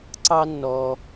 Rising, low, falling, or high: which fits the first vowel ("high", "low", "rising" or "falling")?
high